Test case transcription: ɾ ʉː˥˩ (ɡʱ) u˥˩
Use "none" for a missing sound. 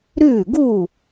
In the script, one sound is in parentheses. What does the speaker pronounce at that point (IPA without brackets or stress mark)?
ɡ